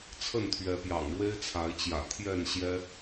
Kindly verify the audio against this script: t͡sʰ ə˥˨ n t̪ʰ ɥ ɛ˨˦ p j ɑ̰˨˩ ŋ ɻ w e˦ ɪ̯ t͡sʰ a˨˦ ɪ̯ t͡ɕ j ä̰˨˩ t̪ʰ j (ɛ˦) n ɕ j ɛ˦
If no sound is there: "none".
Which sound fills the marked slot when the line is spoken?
ɛ˥˨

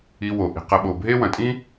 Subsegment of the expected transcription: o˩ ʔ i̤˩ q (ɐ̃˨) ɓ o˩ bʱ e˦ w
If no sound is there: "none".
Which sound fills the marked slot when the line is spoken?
ɐ˨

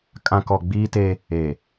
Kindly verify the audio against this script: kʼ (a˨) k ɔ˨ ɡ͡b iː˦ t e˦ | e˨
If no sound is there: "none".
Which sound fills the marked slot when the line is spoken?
ã˨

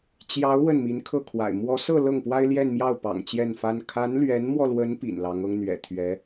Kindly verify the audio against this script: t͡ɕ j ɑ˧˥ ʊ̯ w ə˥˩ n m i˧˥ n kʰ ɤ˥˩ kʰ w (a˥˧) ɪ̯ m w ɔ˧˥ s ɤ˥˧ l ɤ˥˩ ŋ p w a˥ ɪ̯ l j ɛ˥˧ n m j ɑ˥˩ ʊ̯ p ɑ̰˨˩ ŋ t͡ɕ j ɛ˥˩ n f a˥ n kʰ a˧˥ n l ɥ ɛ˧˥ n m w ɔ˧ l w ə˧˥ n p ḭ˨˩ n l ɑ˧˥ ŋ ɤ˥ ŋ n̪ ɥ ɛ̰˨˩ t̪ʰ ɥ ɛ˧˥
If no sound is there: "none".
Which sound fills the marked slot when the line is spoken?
a̰˨˩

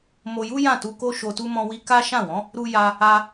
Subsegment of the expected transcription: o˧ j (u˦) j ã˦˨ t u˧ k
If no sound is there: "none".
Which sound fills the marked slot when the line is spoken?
u˦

